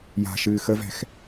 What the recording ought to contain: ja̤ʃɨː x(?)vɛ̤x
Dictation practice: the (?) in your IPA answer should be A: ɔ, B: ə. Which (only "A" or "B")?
B